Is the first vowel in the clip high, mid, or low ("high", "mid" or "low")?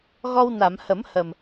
mid